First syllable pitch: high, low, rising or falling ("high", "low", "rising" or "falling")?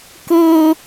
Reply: high